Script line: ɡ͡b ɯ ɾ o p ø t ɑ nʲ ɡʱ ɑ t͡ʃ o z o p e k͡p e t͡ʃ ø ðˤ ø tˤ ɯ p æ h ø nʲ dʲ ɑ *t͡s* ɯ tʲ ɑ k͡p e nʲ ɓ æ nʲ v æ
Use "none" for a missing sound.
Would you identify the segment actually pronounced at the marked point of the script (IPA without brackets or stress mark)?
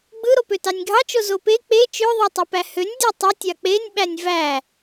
tˤ